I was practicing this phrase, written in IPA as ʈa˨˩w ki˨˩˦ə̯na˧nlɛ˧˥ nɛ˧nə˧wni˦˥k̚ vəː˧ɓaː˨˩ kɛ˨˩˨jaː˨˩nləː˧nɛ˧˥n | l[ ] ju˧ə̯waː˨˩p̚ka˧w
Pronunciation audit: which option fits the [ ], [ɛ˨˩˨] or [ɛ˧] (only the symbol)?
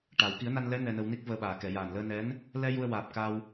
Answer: ɛ˧